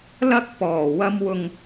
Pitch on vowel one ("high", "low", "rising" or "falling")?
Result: high